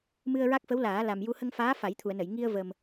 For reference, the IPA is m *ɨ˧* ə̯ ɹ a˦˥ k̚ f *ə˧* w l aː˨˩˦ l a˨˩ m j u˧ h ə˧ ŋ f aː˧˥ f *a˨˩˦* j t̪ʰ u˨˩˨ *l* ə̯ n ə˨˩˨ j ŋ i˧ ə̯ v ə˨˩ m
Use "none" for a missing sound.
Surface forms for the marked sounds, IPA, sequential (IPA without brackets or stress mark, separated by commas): ɨ˧, ə˧˥, a˨˩˦, none